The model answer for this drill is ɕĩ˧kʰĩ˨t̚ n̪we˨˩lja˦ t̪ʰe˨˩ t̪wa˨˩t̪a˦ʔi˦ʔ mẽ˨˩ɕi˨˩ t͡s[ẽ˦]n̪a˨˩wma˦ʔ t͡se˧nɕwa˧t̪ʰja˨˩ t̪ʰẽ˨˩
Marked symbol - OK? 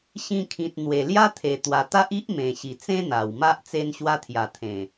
yes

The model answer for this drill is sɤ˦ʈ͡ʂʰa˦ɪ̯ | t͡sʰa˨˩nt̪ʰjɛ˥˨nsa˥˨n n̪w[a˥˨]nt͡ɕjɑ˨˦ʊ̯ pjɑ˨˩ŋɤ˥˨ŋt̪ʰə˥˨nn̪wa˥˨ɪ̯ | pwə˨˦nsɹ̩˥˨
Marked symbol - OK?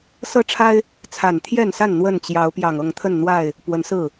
no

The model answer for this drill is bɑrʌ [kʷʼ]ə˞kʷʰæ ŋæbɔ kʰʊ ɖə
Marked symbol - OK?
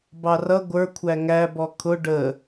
no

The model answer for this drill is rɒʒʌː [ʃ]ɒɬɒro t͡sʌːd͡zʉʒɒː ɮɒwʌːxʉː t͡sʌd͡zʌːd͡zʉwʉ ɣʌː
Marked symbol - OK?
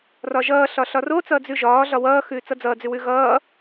no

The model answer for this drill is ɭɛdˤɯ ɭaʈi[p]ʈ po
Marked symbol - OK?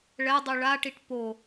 no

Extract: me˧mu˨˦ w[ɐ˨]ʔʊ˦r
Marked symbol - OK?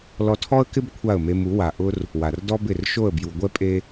no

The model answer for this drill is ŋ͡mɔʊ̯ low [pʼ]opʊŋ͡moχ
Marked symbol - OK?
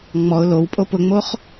yes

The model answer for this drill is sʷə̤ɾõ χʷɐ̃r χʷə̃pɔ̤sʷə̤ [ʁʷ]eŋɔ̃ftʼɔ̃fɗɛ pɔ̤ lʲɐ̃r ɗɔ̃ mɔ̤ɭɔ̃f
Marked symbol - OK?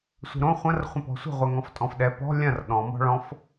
yes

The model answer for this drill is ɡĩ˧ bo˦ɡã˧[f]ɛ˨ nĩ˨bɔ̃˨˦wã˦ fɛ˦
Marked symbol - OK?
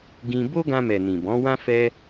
no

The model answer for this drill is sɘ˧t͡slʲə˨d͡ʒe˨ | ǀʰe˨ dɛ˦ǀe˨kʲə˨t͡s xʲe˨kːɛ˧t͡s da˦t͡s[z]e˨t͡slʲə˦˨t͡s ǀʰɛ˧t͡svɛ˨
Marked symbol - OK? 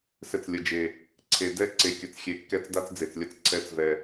no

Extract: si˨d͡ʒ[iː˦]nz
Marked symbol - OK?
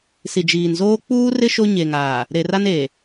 no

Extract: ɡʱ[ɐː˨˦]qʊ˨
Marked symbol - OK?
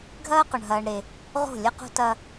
no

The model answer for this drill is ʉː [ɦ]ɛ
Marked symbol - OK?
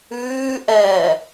no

